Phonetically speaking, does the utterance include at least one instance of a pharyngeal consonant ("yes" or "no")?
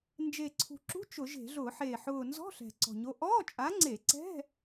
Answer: yes